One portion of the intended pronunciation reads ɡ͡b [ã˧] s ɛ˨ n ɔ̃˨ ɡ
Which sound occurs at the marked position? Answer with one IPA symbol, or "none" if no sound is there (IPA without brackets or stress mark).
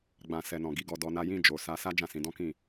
ã˨